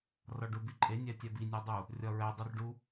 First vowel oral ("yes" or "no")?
yes